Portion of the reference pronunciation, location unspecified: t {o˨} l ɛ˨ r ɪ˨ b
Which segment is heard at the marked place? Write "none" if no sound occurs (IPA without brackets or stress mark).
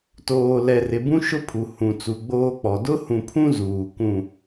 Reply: oː˨